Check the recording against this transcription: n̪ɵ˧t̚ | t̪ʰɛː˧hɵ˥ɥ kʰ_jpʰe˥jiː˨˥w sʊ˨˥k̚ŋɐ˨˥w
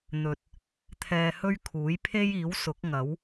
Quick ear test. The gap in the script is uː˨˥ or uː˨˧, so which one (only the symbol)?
uː˨˥